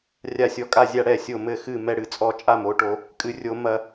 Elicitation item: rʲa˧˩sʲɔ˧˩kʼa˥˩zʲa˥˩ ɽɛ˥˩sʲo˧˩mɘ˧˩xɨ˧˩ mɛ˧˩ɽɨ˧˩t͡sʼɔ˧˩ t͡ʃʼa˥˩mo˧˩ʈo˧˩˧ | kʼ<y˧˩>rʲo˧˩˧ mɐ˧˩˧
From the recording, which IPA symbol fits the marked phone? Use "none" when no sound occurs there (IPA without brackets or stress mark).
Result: ɨ˧˩